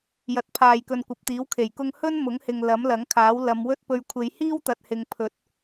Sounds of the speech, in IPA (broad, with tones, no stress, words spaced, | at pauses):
jɐ˨˥t̚pʰaː˨jkɵ˨n kʷɐ˨p̚t̪iː˨˥wkʰe˨˩j kʊ˧ŋhɵ˥n mʊ˨˥ŋhɪ˨ŋ lɐ˨˥mlɐ˨˥ŋkʰaː˨˥w lɐ˨˧m wɵ˥t̚pɵ˧ɥ kʷʰe˨˧jhiː˥wt̪ɐ˨t̚ hɪ˨˧ŋpʰɵ˨˥t̚